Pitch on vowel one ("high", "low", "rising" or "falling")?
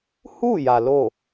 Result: falling